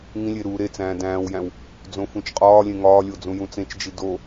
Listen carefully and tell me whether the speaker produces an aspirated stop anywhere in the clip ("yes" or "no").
no